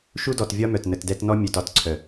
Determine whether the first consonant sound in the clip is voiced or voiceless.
voiceless